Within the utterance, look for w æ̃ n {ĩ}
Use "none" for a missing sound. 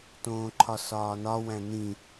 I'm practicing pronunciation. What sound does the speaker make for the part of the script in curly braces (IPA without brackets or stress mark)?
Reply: ĩ